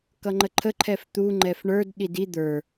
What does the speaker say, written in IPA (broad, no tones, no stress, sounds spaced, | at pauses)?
k ʌ ŋ͡ǃ ə ǃʰ ə ǃʰ ɛ f t̪ u ŋ͡ǃ ɛ f ɳ ə˞ d ɗ i d i d̪ ə˞